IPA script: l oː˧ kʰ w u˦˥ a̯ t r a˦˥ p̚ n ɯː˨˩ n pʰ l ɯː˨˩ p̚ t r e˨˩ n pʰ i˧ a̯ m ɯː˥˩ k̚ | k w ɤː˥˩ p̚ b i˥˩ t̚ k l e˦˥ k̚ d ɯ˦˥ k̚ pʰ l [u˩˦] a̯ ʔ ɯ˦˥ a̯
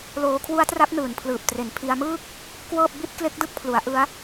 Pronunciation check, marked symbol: correct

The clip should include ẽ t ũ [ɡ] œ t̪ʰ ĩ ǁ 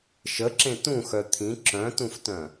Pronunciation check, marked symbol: incorrect: x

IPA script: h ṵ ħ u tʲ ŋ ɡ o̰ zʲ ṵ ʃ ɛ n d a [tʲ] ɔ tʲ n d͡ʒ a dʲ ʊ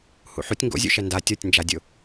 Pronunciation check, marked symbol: correct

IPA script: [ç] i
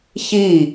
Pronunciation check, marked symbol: correct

